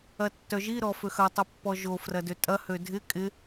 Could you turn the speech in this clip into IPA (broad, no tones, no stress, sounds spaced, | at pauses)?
ɐ tː œ ʒ i ɾ ɔ f ø x ɐ tˤ ɪ pː ɔ ʒ o f r ɐ d ø tʼ ɐ h ø dʱ ɪ kʼ ɪ